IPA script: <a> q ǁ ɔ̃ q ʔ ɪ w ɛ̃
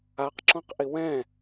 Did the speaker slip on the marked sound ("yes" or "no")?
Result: no